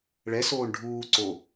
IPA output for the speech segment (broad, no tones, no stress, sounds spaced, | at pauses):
ɭ ɛ s oː ɳ ɖʱ uː ǀ o